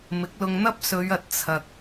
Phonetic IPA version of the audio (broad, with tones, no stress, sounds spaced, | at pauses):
m ɪ˨˥ k̚ l ʊ˧ ŋ n̪ ɐ˥ p̚ s ɵ˨˧ ɥ ɐ˨ t̚ t͡sʰ ɐ˨ k̚